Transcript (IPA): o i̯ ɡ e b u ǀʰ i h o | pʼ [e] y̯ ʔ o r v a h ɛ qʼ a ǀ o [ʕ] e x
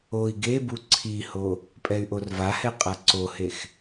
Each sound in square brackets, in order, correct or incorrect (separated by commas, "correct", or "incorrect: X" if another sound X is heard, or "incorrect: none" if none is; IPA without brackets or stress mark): incorrect: ɛ, incorrect: h